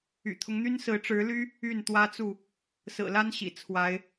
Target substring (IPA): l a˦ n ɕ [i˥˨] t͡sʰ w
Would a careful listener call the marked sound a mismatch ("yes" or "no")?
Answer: yes